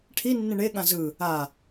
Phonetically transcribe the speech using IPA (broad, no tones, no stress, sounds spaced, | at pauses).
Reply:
ʈʰ i nː ĩ ɳ e ɠ ã z ɯ | a